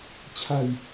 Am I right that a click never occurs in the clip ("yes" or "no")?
yes